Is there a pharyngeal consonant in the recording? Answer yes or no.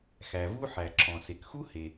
yes